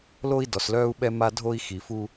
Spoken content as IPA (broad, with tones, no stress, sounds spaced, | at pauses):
l o˦ i̯ d ɔ˨ s l œː˦ u̯ ɓ ɛ˦ m a˦ dʱ o˦ i̯ x i˨ f u˦